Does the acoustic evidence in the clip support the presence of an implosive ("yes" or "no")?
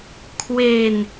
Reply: no